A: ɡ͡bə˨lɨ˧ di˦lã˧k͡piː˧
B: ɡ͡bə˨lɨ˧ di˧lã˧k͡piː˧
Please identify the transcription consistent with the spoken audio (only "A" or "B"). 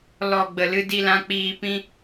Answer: B